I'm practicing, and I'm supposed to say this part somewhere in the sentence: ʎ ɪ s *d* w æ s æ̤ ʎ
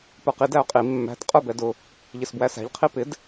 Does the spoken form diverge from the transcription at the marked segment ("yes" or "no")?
yes